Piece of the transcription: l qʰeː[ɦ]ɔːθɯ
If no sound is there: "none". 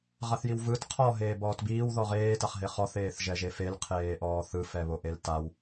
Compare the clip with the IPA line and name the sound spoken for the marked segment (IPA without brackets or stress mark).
ʔ